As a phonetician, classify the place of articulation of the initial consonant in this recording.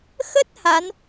velar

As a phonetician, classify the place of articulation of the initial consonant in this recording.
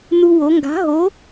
alveolar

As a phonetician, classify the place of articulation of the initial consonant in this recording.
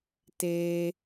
alveolar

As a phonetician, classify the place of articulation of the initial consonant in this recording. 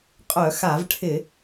uvular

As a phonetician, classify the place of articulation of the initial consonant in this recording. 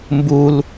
labial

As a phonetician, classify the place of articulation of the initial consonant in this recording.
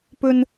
labial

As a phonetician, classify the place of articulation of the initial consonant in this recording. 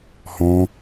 glottal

